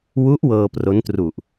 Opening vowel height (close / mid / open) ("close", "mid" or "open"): close